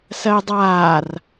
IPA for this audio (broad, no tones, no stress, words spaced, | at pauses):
sɜjdˤaːr